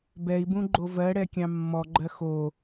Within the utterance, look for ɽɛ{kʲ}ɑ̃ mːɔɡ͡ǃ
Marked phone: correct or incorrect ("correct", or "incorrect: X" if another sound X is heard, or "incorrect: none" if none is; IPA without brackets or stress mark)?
correct